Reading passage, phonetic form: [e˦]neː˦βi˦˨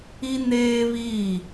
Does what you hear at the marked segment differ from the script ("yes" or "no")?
yes